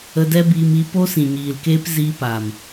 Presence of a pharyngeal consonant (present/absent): absent